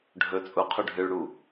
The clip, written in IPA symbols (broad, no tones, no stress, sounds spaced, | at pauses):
ɖʱ ɵ t͡sʼ u qʰ u ɖʱ ɨ ɭ ɽ u